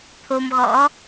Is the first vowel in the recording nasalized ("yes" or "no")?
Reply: no